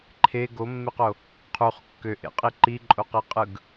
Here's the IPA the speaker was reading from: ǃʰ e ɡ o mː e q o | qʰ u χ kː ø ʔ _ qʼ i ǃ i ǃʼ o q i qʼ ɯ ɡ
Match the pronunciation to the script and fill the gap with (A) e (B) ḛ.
B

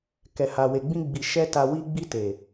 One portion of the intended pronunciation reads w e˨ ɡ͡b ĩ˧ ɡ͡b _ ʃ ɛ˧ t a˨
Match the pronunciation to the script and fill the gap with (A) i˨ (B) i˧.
A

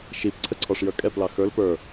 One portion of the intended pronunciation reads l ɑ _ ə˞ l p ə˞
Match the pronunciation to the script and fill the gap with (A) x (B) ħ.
A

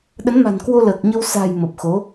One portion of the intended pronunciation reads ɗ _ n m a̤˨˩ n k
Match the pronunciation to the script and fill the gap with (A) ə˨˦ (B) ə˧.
A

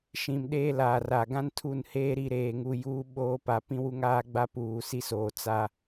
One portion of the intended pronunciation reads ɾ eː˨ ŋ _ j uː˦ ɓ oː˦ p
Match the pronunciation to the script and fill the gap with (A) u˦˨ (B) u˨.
B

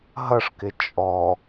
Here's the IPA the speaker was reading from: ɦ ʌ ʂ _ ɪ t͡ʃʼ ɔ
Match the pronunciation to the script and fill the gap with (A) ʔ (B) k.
B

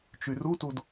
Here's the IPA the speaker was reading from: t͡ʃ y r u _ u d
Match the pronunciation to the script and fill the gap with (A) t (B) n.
A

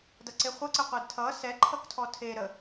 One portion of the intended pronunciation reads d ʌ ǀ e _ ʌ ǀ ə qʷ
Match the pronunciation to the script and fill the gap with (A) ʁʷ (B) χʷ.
B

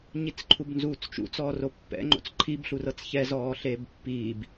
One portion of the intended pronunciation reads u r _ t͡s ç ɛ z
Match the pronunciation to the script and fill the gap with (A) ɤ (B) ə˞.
A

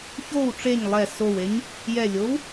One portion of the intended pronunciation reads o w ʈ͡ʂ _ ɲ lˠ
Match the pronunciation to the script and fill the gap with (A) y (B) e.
B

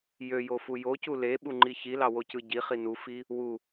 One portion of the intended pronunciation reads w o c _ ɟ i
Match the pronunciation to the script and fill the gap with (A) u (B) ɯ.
B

